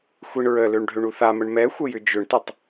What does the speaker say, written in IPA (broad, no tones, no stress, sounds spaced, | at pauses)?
xʷ i ɳ ɹ ə l ø ɳ ɖʱ ø ɳ u θ a m ə ɳ m ɛ xʷ ə j ʏ d͡ʒ ʏ ɳ t ʏ tˤ